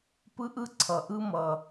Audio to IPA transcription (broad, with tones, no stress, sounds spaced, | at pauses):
p ɯ˥ ʔ ɯ˥ ǀʰ ʌ˩ ʔ ɯ˥ m ʌ˩